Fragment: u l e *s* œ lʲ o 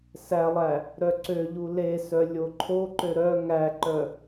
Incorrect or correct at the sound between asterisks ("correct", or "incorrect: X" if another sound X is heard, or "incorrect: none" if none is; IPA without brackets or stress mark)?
correct